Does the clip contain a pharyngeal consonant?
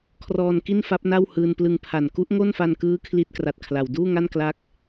no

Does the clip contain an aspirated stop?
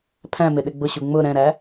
yes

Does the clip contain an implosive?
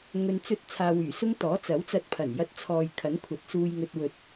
no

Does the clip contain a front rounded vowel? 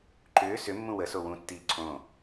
yes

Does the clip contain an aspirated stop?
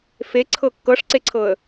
yes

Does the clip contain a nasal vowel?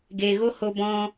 yes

